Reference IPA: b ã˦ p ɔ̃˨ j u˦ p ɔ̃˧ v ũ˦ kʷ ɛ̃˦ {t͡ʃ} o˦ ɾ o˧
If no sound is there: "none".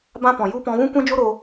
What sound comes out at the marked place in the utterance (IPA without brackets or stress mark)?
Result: d͡ʒ